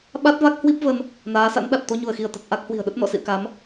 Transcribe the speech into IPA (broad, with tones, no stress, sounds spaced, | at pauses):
ɓ a˦˥ t̚ v a˦˥ k̚ h w i˦˥ p̚ v ə˧ n | n aː˨˦ s a̰˧˥ n ɗ a˨˩ t̚ t̪ o˧ ɲ u˧˩ ə̯ x i˧˩ ə̯ t̪ ə˨˩ t̚ ʔ a˦˥ k̚ h w i̤˨˩ ə̯ ɗ ə˦˥ t̚ n ɔ̰˧˨ s ḭ˧˨ ə̯ k a˨˦ m